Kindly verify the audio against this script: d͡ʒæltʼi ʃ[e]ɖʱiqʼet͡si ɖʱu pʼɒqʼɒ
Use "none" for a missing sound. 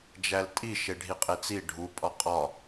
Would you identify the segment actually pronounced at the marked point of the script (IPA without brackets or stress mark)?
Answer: e